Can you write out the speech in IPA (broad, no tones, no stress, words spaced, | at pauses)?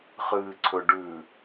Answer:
χɨːǀʰɵɖʉ